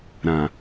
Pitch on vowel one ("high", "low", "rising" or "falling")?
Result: low